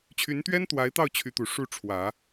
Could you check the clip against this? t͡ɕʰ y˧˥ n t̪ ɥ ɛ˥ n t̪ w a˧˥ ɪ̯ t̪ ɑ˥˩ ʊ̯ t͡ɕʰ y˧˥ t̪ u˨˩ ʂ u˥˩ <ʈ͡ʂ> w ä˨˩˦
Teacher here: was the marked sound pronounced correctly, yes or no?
no